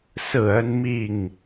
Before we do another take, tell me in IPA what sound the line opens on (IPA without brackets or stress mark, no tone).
s